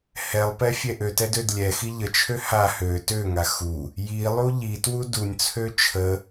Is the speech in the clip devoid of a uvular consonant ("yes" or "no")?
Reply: yes